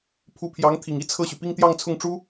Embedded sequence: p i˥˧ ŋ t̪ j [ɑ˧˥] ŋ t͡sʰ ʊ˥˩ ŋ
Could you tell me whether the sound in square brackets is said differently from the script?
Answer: yes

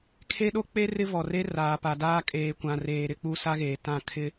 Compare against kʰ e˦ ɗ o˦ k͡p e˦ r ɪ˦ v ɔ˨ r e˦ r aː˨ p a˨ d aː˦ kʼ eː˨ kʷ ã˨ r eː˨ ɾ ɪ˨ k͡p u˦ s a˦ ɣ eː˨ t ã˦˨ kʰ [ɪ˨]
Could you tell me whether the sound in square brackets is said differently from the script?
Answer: yes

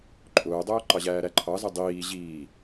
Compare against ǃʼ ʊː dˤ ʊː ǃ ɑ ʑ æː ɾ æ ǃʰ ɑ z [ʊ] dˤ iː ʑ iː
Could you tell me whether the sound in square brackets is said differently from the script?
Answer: no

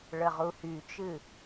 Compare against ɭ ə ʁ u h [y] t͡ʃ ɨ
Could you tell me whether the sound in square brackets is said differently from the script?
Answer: no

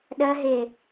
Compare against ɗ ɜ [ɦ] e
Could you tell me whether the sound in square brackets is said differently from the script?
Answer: no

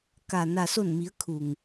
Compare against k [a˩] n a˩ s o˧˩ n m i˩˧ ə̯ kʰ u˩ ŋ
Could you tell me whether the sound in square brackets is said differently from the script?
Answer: no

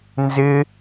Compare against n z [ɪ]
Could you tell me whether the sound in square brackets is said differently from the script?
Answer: no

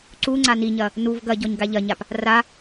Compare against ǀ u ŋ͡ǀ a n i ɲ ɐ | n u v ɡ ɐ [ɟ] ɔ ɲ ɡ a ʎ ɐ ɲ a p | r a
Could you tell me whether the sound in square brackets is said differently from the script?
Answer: no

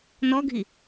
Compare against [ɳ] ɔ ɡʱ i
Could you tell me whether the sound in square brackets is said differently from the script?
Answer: yes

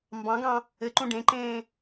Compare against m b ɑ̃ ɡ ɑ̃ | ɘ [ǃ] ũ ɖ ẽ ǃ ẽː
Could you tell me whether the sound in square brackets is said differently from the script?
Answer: no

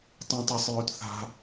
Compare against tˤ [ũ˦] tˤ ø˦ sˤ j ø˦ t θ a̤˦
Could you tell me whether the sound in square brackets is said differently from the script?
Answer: no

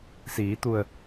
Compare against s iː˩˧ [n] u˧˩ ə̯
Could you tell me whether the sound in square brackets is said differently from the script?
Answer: yes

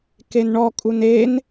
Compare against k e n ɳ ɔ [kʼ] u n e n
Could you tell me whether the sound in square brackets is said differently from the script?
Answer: no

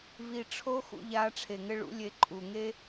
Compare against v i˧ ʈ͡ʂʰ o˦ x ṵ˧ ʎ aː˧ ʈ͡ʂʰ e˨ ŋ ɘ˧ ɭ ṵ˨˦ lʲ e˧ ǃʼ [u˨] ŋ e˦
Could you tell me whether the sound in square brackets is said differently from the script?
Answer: no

